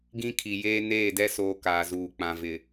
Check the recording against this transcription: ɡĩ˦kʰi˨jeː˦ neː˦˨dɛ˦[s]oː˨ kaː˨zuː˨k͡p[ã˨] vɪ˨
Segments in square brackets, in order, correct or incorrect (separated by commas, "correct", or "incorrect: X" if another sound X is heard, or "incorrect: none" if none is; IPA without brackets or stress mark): correct, correct